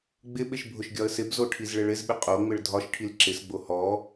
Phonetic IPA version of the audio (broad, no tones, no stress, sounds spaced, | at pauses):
ɡ͡b ɪ ɓ ɪ ʃ bʱ ʊ ʃ ɡʲ ɒ ə̯ s ɪ b z o ʈʰ i z ɭ ɪ ɭ ɪ z ɓ ɪ qʼ o ŋ͡m ɪ ɭ dʱ ɒ ʃ ʈʰ i l ǁ ɪ s ɡ͡b o h ɔ